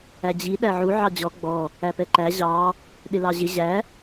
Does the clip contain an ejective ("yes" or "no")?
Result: no